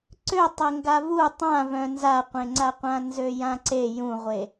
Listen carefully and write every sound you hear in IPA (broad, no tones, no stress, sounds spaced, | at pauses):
ǀ ø tˤ e ŋ ɡ a v u tˤ ã v œ̃ n z a qʷ ẽ ŋ͡ǀ a qʷ ã n z ø j ã ǀ e j ũ ʁʷ e